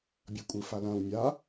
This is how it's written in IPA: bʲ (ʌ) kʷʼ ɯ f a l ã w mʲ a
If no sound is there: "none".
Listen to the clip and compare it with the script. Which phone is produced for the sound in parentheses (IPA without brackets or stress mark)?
ʌ